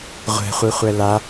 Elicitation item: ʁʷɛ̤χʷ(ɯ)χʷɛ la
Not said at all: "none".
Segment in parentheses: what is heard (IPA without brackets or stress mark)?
ɯ